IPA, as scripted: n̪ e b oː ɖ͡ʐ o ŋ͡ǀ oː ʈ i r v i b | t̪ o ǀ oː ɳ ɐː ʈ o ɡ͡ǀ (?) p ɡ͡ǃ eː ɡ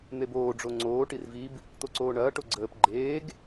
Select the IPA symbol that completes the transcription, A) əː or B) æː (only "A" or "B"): A